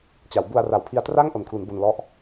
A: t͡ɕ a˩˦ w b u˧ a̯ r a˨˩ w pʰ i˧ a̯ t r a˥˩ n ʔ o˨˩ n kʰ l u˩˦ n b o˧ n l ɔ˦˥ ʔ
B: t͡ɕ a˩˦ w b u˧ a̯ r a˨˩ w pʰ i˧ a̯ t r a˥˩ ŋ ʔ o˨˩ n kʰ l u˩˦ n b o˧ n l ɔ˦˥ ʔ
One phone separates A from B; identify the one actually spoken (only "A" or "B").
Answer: B